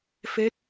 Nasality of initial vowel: oral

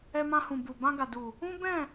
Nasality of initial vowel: oral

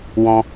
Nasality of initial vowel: nasal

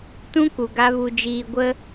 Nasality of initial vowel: nasal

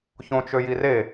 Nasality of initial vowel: nasal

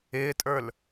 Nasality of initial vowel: oral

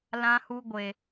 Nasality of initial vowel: nasal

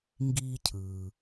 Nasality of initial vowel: oral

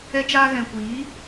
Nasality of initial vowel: oral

